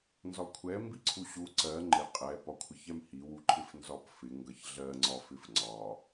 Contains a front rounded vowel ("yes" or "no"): no